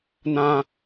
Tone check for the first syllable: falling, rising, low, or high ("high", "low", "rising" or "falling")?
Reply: high